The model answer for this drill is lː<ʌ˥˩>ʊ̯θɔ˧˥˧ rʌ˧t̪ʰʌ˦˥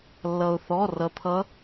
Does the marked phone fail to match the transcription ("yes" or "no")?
yes